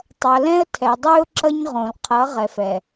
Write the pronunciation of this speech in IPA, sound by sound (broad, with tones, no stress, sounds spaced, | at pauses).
tˤ ʌ˨ l ɛ̃˦ ə̯ tʰ ɛ˨ dˤ y˦ ʊ̯ ǁ ʌ˦ ɲ ʁ õ˨ l qʰ ʌ˨˦ ʁ ɛ˨ f ɛ˨